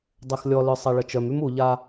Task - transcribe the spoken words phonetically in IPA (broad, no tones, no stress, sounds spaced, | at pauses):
dˤ e x lʲ ɔ l œ sˤ a ɭ ə t͡ʃ œ m y m u ʎ a